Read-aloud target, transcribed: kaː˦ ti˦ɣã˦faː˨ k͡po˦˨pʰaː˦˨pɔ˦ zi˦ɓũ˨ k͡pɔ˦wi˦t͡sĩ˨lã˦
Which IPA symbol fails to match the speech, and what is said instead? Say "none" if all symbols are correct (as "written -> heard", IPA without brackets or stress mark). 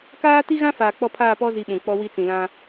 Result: o˦˨ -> ɔ˦˨